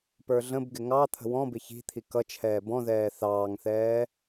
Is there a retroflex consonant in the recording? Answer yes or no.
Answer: no